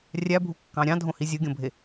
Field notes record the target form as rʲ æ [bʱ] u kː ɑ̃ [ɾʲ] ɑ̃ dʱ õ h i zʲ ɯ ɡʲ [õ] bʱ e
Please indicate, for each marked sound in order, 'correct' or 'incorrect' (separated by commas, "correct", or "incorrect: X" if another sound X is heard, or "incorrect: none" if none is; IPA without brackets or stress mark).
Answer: correct, correct, correct